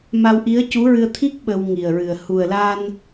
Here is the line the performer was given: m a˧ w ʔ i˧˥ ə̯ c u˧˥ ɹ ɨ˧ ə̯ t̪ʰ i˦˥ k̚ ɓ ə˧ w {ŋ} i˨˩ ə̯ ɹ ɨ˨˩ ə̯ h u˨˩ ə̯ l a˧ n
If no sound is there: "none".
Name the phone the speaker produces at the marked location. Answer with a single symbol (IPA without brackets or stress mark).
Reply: ŋ